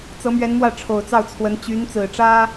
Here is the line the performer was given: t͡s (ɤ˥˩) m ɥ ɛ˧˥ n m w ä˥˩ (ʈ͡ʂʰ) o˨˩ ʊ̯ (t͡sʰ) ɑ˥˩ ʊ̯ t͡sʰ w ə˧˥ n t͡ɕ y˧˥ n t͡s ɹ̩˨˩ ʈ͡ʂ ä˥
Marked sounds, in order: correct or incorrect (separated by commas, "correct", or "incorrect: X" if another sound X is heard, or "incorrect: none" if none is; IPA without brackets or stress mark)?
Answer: incorrect: ɤ˧˥, correct, incorrect: t͡s